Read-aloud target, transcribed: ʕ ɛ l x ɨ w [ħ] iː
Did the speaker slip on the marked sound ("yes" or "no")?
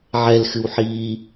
no